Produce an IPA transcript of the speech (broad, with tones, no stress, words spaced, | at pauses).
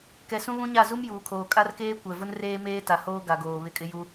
kɛ˨sũ˦βũ˦ɲa˦˨ zu˦mjuː˨kʰoː˨ kʼa˦rkeː˦ kʷɛ˨ vʊ˦nreː˦meː˦ ta˨hoː˦ ɡa˨ ɡoː˨ βɪ˦˨kʼɪ˦ju˦